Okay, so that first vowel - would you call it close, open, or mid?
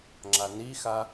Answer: open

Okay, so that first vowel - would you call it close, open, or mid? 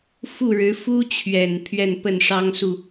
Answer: close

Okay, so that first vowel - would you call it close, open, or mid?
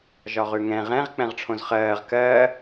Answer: open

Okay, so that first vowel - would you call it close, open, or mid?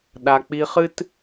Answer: open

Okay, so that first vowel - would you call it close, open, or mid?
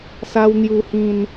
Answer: open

